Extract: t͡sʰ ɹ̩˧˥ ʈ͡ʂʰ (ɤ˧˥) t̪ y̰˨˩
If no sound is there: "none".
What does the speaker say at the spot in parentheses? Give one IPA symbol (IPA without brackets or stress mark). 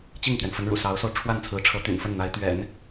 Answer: ɤ˧˥